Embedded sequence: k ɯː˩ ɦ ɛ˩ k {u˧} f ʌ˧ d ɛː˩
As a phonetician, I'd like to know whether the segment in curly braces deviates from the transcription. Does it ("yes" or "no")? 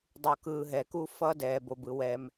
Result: no